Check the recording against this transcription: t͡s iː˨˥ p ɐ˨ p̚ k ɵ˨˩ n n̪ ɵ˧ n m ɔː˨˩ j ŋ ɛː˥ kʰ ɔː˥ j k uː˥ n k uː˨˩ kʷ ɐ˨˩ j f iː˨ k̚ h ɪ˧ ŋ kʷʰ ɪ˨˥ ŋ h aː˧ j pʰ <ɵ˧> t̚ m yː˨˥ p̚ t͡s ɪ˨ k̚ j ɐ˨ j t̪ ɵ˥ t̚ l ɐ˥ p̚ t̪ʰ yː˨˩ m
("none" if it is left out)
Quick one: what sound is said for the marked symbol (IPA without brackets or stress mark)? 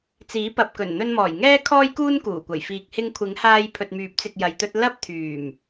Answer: ɵ˨